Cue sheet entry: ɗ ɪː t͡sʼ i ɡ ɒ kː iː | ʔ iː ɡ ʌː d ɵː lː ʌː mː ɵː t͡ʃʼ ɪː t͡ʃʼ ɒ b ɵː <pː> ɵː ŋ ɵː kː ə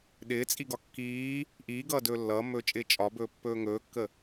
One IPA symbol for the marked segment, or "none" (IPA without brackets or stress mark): pː